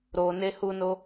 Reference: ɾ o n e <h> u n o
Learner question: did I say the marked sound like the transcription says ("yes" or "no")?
yes